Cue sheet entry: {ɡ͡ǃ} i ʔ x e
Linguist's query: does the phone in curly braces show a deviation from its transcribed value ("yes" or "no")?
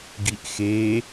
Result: yes